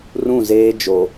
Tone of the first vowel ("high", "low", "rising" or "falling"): falling